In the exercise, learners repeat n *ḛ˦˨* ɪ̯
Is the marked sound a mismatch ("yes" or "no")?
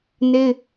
yes